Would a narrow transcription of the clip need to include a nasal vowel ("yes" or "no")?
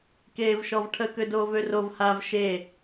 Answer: no